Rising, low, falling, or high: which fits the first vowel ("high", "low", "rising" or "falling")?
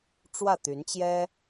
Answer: falling